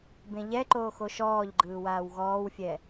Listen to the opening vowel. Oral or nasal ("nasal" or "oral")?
nasal